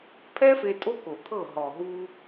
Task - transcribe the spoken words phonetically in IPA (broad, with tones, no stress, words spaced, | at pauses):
pʰɛ˦fe˧ tʼo˦ko˨t̪ʰɤ˦˨ ɦɔ˨ɦu˧